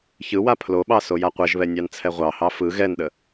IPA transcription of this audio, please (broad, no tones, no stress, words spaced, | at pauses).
çɯwa pʰloɓɑ sojaqʷɛʒβɛ nʲɑnt͡sʰɛʁʷɑhɑ fɯ ɣɛnɗə